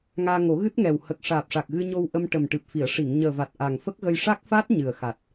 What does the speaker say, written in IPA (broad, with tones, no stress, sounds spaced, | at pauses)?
ŋ aː˧ ŋ o˨˩˦ ɣ ɨ˦˥ t̚ ŋ ɛ˨˩ w h ə˨˩ k̚ ʂ aː˨˩ p̚ ʂ a˨˩ k̚ ɣ ɨ˧ ɲ o˧ w ʔ ə˧ m ʈ ə˨˩ m ʈ ɨ˨˩ p̚ f i˨˩˨ ə̯ ʂ i˨˩˨ ŋ ɲ əː˨˩ v a˨˩ t̚ ʔ a˨˩ ŋ f ə˦˥ k̚ ɣ ə˧ j ʂ a˦˥ k̚ f a˦˥ t̚ ɲ ɨ˨˩ ə̯ x a˨˩ t̚